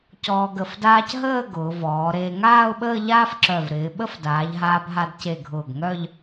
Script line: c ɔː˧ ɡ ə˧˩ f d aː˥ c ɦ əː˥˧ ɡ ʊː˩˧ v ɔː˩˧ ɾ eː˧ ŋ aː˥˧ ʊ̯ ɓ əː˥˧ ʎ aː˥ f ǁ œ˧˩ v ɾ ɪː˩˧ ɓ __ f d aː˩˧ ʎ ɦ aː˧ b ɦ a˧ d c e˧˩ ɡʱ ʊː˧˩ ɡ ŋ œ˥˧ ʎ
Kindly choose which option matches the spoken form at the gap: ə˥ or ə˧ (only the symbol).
ə˥